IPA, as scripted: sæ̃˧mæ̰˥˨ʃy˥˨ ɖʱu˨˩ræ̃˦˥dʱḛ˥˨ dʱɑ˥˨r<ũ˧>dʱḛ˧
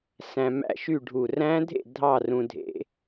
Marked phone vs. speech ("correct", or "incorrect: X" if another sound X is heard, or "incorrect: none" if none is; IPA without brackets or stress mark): correct